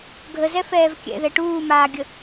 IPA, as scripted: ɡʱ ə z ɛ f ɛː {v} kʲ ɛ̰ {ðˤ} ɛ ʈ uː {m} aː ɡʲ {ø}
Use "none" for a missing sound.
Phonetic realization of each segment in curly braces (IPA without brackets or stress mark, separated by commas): v, ð, m, ə